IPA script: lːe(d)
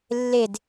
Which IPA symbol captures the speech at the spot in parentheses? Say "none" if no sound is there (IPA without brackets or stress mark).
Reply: d